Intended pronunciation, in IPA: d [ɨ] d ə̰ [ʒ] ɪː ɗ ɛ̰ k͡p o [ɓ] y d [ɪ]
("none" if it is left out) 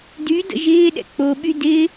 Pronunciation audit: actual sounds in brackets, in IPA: y, ʒ, ɓ, ɪ

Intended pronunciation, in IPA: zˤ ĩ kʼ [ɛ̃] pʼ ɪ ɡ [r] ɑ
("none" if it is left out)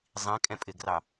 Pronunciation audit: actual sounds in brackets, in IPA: ɛ̃, r

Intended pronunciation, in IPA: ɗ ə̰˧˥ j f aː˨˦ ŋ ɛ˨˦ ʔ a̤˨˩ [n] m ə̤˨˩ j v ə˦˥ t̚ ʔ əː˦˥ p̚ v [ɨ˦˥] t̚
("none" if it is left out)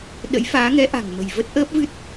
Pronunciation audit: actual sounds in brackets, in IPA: ŋ, ɨ˦˥

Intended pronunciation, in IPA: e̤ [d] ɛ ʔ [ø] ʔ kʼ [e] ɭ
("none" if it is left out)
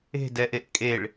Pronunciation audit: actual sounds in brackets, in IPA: d, e, e

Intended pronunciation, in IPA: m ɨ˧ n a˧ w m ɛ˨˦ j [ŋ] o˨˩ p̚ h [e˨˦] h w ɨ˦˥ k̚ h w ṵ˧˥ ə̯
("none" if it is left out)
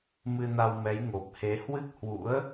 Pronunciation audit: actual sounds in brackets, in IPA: ŋ, e˨˦

